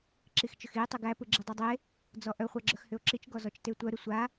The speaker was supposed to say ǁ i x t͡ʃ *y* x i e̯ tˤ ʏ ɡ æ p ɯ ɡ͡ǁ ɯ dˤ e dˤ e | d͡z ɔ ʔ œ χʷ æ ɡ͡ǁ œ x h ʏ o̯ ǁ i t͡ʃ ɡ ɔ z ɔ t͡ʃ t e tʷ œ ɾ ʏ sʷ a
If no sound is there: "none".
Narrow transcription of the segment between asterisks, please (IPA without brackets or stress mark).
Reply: ʏ